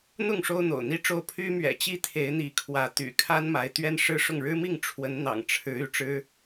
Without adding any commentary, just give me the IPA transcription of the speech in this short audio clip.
n̪ʊ˥˨ŋ ʂo˦ʊ̯n̪o̰˨˩ʊ̯n̪i˦ʈ͡ʂo˥˨ʊ̯ pʰy˦ mɥɛ̰˨˩t͡ɕi˦ t̪ʰe˨˦ɪ̯n̪i˨˦ kʰwä˨˦ t̪y̰˨˩ kʰa˦nma˨˦ɪ̯ t̪ɥɛ˦nʂɻ̩˦ʂʊ˥˨ŋ ɻɻ̩˦mi˥˨ŋ ʈ͡ʂʰwə˨˦nn̪ɑ̰˨˩ŋ ʈ͡ʂʰɻ̩˨˦ y˨˦ʈ͡ʂɻ̩˦

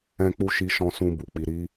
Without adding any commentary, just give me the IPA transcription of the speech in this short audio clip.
ɛ̃˧k͡pu˧ʃi˧ ʃɔ̃˧sũ˧ bu˨k͡pi˧ɾi˦

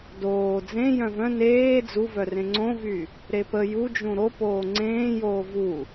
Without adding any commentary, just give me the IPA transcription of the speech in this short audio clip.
doː d͡zẽ jœ̃vœ̃ neː d͡zuvœrẽ ŋ͡ǀõvy | ɾepə jud͡ʒũ ɾo poːŋ͡ǀẽːjoː vu

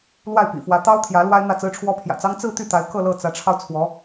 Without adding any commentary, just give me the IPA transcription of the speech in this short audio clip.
lwa˥˩ɪ̯pḭ˨˩fwä˧˥ t̪ɑ˥ʊ̯t̪ʰjä˧˥ lwa˥ɪ̯n̪ä˥˩t͡sɹ̩˥ʈ͡ʂʰwɔ˥ pʰjä̰˨˩t͡sɑ˥ŋ t͡sɹ̩˥˧t̪y˥˩t̪a˧˥ɪ̯ kɤ˥˧lɤ˥˩ t͡sä˧˥ʈ͡ʂʰɑ˧ʊ̯ t͡sʰwɔ˧˥

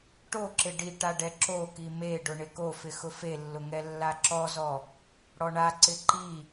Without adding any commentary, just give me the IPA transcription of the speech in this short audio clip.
ʈoǁɪ ɖiʈa ɖɛǁoki meɖʊ ɳɪkofɪ xʊfelːʊ ŋɛlːaǁɔzɔ | ɽɔɳaǀɪ ǃi

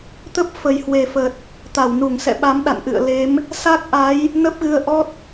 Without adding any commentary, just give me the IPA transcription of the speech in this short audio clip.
t̪ə˦˥p̚ fə˨˩jhwe˨˩fə˨˩t̚ | t̪a˧˩wnu˧˩ŋsɛ̰˧˨ɓa˨˦m ɗa̰˧˨nʔɨ̰˧˨ə̯le˨˦m | sa˦˥k̚ʔa˨˦j | nə˦˥p̚ɣɨ˧ə̯ʔɔ˦˥t̚

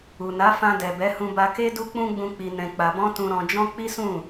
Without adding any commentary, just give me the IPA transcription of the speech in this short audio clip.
u˨na˨˦fã˧ dɛ˨bɛ˨˦hũ˧ ba˧ke˦ du˦k͡pũ˦ ɡ͡bũ˧ k͡pi˧nɛ̃˧k͡pa˧ bɔ̃˦tũ˧ ɾɔ̃˧d͡ʒɔ̃˦ k͡pi˦sũ˦˨

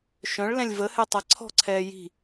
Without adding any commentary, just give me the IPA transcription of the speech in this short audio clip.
ʃœ̃ɭ lɛ̃lʲvəhɛ tˤaǀʰɔ̤ǀʰɛː ji̤

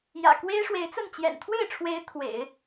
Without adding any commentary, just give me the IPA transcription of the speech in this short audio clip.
jä̰˨˩ kwe˥ɪ̯ʂwe˧˥ɪ̯t͡sə˥˩n t͡ɕjɛ̰˨˩nt̪ʰwe˥˩ɪ̯ʈ͡ʂʰwe˧˥ɪ̯ t̪ʰwḛ˨˩˦ɪ̯

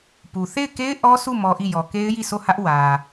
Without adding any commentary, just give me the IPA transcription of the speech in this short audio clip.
pu˨ θe˦˨ɪ̯ke˦ɪ̯ ʔɔ˦sʰu˦˨ mɔ˦ʔi˦˨ jɔ˨ke˦ɪ̯ji˦˨so˦˨ hä˦ʔ wä˨

